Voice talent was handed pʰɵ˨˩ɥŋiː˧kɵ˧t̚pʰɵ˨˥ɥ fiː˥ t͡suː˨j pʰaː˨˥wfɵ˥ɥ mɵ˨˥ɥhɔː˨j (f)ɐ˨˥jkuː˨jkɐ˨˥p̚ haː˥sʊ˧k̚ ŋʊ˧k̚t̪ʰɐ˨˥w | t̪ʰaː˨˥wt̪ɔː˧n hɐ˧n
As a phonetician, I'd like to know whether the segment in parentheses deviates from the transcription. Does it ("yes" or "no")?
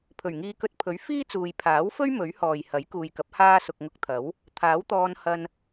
yes